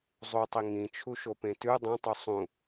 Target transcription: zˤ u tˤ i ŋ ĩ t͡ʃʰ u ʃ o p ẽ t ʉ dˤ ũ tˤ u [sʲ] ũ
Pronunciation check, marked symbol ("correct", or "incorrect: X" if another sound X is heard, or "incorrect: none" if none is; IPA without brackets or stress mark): incorrect: sˤ